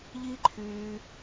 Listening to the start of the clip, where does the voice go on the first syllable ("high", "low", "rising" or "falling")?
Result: high